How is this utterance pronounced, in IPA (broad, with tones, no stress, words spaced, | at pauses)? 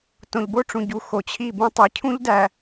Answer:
tõ˨ʎbo˦ʈ͡ʂũ˨ ɟu˨˦xo˨t͡ɕʰi˦˨bũ˦ tˤi˨cʰũ˦ʎdæ˨